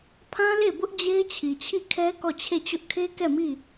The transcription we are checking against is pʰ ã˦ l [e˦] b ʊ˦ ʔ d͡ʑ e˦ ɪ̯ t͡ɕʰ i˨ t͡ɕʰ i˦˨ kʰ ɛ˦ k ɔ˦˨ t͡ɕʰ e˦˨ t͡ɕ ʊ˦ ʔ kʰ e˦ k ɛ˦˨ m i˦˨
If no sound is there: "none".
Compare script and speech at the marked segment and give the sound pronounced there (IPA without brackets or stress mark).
e˦˨